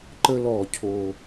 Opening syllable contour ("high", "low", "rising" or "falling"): high